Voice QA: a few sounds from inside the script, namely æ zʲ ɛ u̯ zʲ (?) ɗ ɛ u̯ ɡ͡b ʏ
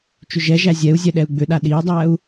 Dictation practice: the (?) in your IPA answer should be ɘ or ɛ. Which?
ɛ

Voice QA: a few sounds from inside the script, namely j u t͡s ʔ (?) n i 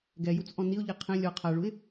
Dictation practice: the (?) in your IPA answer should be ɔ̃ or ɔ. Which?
ɔ̃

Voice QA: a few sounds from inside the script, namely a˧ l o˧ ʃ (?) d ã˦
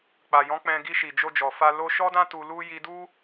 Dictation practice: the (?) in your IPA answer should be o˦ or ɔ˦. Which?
ɔ˦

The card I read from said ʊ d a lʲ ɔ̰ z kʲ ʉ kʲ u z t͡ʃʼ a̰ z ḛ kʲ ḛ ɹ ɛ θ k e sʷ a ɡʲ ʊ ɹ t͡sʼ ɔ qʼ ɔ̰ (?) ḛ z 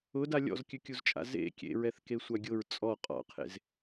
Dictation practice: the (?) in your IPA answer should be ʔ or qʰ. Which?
qʰ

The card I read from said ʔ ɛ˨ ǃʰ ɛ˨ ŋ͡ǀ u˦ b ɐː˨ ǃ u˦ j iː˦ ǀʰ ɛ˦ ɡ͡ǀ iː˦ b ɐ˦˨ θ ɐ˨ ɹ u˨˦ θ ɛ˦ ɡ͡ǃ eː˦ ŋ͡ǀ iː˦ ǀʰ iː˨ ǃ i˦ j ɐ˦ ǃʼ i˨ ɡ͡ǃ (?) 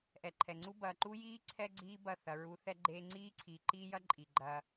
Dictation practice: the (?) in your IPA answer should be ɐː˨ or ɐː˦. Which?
ɐː˦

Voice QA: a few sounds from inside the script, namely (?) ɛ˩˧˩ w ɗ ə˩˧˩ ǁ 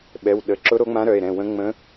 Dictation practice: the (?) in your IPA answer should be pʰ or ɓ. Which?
ɓ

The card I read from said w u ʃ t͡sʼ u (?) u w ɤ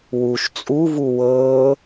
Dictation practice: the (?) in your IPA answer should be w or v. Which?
v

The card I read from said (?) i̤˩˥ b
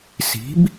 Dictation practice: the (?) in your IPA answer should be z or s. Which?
s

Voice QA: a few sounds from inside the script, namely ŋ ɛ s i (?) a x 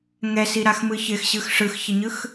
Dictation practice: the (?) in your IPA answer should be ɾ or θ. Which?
ɾ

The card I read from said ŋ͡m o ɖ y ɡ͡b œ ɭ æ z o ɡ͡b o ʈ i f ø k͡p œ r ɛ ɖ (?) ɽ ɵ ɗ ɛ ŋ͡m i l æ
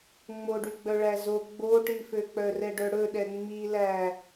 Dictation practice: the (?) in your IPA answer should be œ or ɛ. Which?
œ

